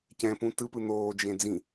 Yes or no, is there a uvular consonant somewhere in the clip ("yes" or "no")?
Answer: no